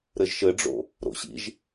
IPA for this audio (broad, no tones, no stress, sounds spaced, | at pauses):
ɾ ɘ ʒ ʃ ɘ ɖ͡ʐ o̰ | ɾ o̰ ɕ ḭ ʒ